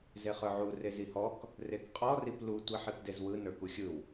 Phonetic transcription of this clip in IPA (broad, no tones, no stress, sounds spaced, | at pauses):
z e χ ə˞ ʕ u r e z i h ɔ k | r e k qʼ ɔ r i p l u tʷ i ħ i p d e z w ɯ n ə˞ k u xʲ ɯ w